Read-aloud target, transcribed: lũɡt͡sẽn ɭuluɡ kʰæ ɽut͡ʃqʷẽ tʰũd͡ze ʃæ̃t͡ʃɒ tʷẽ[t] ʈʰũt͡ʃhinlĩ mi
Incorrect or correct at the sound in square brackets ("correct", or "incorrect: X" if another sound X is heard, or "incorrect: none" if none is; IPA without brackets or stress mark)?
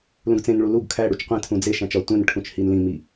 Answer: incorrect: n